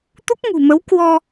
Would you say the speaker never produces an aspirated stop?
yes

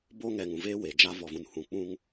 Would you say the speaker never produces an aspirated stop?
yes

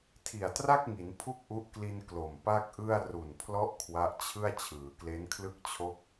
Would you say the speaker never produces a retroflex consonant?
yes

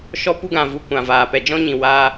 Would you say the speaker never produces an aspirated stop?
yes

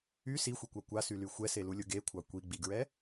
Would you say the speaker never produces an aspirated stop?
no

